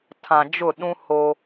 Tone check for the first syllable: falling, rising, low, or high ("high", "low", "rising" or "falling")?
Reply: low